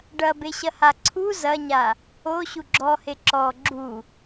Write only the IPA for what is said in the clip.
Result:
ɖ ɐ b e ɕ ɐ h a ǀʰ u z ɐ ɲ a | o ɕ u ɡ͡ǁ ɔ h e ǁ ɔ ɡ͡ǁ u

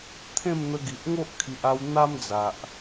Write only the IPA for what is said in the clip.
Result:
t̪ʰ ẽ˥˧ m n̪ ə˧ ɡ i˨ ʔ ŋ o˦ ʔ kʰ i˨ ʔ a˧ w n̪ a˦ m d͡z a˨ ʔ

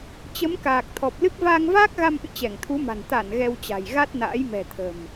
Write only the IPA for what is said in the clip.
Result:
t͡ɕ ə˨˦ m k aː˨˩ k̚ t̪ʰ ɔ˨˩ p̚ l ɨ˦˥ k̚ v aː˧ ŋ v aː˦˥ k̚ ɣ a˧ m ʔ ɨ̰˧˨ t͡ɕ ɛ˧˩ ŋ t̪ʰ u˨˦ m a̤˨˩ n t̪ a˧˩ n ɣ ɛ˧ w t͡ɕ a̤˨˩ j ɣ a˦˥ t̚ n a̰ː˧˥ j m ɛ̤˨˩ t̪ʰ ə̤˨˩ m

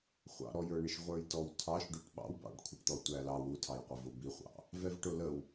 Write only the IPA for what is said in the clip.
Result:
χʷ ɑ̰ ɾ ɔ j ə˞ ɳ ɪ ʃ ʁʷ ə˞ j t ɔ w tʰ ɑ ʃ ɖ u ʈ ɓ ɑ̰ w b ɑ̰ ɖ kʷʰ ɪ ʈ t̪ ɔ tʷ æ l ɑ w u tʰ ɑ j qʷ æ v ʊ b i χʷ ɑ̰ | v ɛ v ʈ ʊ l ə w

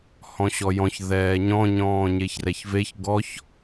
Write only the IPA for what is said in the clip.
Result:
h ɔ̃ ɕ ɔ j ɔ̃ ç ð ɛː ɲ ɔ̃ ɲ ɔ̃ː ɲ e ç r ɛ ç v e ç ɡ ɔ ç

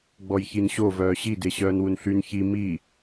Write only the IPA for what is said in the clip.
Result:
ɡ͡b ɔ j ç i n ɕ o v œː ɕ i d e ɕ œː n w u n ɬ y n ç i m i

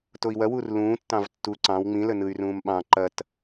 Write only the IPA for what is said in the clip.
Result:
t o i̯ w ɐ w u r l ũː tː ɑ̃ v tː u ǀ ɑ̃ w ŋ͡m ĩ l ə n ɯ y̯ r ũː m ɓ ɑ̃ ǃ ɐ t

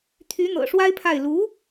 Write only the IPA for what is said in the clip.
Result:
t̪ʰ y˧˥ n̪ ɤ̰˨˩ ʂ w a˥ ɪ̯ pʰ a˥˩ ɪ̯ l u˧˥

